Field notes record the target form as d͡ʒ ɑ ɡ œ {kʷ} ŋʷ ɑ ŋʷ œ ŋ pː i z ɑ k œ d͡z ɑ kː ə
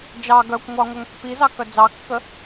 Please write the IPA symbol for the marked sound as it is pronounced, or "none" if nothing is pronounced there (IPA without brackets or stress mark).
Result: kʷ